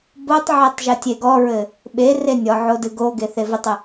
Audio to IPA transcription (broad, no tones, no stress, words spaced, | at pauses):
botˤʕetˤ ʒɘtʲeɡɔɹɘ | ɓere nʲɔʕo dɨɡoɡe θevətˤə